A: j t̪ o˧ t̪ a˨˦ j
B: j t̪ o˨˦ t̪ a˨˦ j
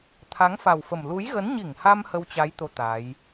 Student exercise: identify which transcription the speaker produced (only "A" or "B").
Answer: B